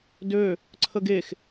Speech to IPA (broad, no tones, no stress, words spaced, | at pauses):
dø | ǀʰəɡex